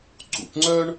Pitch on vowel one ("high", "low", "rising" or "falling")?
low